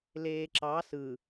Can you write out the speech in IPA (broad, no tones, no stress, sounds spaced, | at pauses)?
l eː ǁ ɑ s ɯ